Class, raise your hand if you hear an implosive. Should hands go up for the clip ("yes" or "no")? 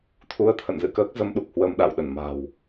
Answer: yes